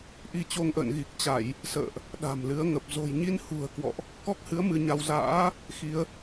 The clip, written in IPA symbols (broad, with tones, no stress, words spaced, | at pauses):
ʔi˧t͡ɕo˧ŋʔə̰ː˧˨n ɣi˨˩k̚t͡ɕa˧˩˨j | sə̰ː˧˨ʔ | ɗa̤˨˩mlɨ˨˦ə̯ŋə˨˩p̚ zo̤˨˩jɲi˧nhṳ˨˩ə̯ kwɔ̰˧˨ʔ | kɔ˦˥k̚hɨ˨˦ə̯ mɨ˧ɲa˧w za̰ː˧˥ | xi˨˦ə̯